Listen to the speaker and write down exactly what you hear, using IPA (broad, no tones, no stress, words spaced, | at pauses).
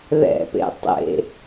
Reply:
ðɛ̰pḛ tˤḛ